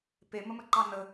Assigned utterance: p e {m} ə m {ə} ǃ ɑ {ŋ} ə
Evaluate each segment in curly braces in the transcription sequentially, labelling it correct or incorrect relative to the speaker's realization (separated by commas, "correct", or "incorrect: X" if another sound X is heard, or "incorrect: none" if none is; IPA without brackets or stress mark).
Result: correct, correct, incorrect: n